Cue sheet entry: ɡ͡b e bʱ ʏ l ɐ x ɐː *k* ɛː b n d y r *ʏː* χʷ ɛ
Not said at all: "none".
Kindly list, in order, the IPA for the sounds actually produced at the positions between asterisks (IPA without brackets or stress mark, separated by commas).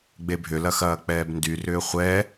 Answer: k͡p, ʏː